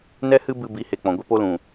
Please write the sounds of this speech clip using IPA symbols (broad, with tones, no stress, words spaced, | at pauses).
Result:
nɛ˦hɨ˦ bɨ˧bi˨˦he˨ k͡pɔ̃˨ ɡʷe˦po˦ lũ˨